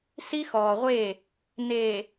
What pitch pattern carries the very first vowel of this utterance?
high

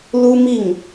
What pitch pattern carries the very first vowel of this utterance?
high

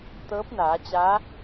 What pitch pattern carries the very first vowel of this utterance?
rising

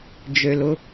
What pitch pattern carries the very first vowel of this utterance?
low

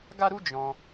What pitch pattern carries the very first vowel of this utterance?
high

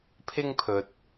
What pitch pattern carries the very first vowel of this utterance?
high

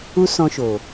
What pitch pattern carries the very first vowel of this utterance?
high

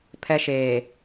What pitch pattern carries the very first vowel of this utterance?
high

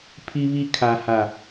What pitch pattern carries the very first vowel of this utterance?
high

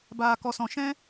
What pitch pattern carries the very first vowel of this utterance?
low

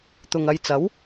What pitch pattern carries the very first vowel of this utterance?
low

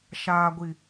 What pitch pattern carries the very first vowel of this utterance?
low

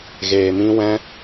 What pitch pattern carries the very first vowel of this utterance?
low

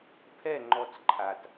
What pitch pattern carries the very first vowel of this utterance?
falling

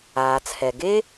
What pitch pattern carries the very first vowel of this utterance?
low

